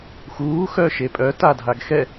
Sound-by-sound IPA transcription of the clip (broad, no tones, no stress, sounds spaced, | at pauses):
x uː x œ ʃ e pʼ œ t a dʱ a ɡ x ɛ